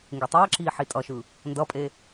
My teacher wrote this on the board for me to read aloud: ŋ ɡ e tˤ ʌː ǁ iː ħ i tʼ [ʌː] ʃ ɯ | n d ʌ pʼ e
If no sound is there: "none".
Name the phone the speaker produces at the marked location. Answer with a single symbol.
ʌ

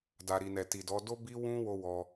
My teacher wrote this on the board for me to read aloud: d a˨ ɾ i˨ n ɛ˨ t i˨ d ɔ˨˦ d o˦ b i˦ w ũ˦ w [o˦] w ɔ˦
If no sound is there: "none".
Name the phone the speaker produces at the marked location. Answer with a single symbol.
o˦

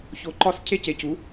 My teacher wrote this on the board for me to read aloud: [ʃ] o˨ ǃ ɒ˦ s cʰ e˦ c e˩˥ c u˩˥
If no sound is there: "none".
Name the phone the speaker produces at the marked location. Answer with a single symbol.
ç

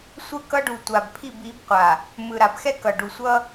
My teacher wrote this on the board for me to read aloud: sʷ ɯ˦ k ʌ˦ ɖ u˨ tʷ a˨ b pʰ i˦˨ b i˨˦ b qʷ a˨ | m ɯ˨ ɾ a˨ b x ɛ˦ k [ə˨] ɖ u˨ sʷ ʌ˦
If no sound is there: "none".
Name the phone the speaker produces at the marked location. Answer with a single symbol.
ʌ˨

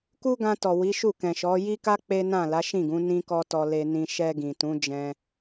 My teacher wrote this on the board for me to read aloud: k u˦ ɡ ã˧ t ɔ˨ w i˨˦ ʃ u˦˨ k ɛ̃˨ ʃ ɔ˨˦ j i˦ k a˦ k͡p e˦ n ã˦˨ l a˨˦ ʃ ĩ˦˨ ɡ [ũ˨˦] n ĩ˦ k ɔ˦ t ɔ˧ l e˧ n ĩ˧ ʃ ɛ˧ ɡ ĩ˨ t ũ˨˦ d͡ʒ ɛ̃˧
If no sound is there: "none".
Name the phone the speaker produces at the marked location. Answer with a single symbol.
ũ˨˦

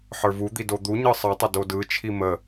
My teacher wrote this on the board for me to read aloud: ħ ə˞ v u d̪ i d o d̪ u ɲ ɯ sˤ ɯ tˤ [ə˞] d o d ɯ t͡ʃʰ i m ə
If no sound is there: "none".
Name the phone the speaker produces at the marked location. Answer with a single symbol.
ə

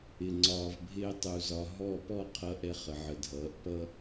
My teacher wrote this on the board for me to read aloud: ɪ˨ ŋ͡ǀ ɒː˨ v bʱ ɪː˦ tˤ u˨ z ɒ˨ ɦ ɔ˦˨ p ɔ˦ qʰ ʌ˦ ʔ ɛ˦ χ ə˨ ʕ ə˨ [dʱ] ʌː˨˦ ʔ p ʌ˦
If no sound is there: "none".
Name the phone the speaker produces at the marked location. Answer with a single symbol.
dʱ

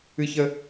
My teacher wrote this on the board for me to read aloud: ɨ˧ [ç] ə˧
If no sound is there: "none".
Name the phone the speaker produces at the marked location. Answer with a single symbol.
ç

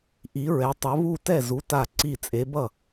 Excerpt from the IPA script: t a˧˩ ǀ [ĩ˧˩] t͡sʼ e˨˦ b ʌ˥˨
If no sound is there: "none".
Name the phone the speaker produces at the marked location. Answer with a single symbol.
i˧˩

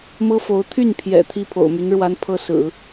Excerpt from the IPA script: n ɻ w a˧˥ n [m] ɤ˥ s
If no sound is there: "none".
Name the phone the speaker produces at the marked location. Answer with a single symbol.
pʰ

